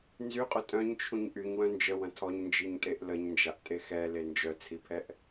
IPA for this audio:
nzyqʼʊ tʼœ̃ɲt͡ʃʰũɲ ʔyɲwœ̃ nd͡ʒəwɐ̃ tʰɔɲnd͡ʒiɲtʼeʔ ləɲnd͡ʒaʔtʼe xɛle nd͡ʒœt͡sʰipʰɛʔ

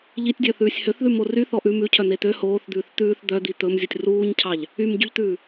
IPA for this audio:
ʎitʲdʲœθʉːsʲ høθðʉmo ryθɔ ʔʉ mʉcʰœn̪e t̪ø hoːθd̪ʉːθ t̪ʉːθ d̪œd̪i t̪ɵmzʲutʲ ruːɲcʰɑʎ | ymɟyʎt̪ʉː

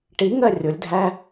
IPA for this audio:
ʈiŋɜ rʲʊlʲdʱæ

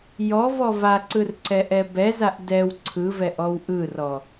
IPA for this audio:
jɔvɔ vaǀɯrǀɛʔɛ bɛzaʔ dɛw ǀʰɯvɛʔɔw ʔɯrɔ

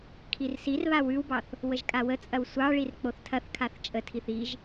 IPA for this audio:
kʰirsirβa wʉwbɑθ | wəʒkʼawət͡sʼɐw sʷɑɭir k͡poθtʰɐθkʰaθ t͡ʃʼətʰiθ iʒ

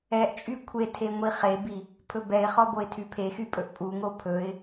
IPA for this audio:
ɛʔt͡ʃʼy kʷʰetʰe ŋʷiχebi | pʰɵbɛɪ̯χɔ boɪ̯tʰypʰexy pʼɵʔpʼuŋo pʰɵɪ̯

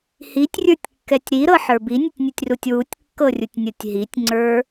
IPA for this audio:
hitʲrʲə˞tʲkːɛtʲ ɾiɾɤħə˞ binʲɨtʲnʲotʲrutʲ wutʲkːɤrʲutʲnʲɤtʲ ɦitʲŋ͡ǀə˞

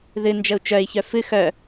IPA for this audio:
ðɨ nd͡ʒəu̯t͡ʃœi̯ çœfɨ xœ

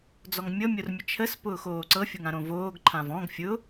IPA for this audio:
d͡zɔŋmʲɤ mʲormʲət͡ʃʰəs pʊːxoːǀɤ fʲoŋãɾõvoːɡ ǃʰãvɔ̃ɡ fʲʊ

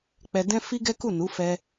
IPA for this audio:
k͡pɛ˧dɛ̃˦fi˦ɡɛ˦ ku˦˨nu˨˦ fɛ˧

